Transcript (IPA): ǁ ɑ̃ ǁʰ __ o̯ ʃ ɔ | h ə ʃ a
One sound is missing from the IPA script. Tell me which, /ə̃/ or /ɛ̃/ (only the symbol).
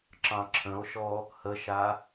ə̃